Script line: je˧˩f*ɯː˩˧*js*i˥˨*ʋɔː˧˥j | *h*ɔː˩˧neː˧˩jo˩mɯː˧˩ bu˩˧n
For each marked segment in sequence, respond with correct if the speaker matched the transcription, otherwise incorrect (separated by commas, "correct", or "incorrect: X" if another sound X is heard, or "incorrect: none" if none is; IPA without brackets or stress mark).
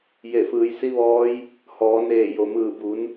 correct, incorrect: i˧˥, correct